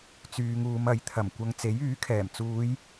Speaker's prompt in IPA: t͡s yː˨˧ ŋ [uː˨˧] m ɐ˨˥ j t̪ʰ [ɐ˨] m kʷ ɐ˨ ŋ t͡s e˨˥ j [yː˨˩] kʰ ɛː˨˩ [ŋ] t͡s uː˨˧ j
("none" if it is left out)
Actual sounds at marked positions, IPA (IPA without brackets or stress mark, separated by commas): uː˨˧, ɐ˨˩, yː˨˥, m